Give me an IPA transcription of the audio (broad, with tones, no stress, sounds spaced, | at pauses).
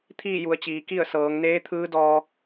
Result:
t̪ʰ iː˥˨ j u˩˧ ə̯ t͡ɕ iː˩˧ k i˥˨ ə̯ s ɤː˩˧ ŋ n eː˧˥ t̪ʰ ɯː˧˥ d ɔː˧